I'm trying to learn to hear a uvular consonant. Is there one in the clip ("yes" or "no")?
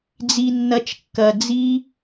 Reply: no